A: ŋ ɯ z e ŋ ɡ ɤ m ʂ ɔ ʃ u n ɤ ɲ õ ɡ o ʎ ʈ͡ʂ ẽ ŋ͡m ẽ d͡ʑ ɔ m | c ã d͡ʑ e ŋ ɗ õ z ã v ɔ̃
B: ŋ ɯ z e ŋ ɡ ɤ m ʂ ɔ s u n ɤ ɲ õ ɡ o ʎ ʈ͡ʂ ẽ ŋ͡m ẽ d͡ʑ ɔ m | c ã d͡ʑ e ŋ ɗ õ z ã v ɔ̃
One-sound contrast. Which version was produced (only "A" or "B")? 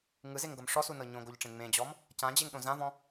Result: B